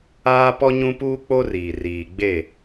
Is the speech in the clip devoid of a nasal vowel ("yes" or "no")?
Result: no